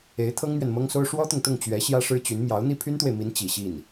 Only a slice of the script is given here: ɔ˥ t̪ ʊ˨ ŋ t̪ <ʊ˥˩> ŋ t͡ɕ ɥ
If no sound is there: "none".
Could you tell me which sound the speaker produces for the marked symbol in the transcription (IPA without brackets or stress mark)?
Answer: ʊ˥˩